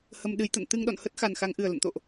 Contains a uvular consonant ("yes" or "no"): no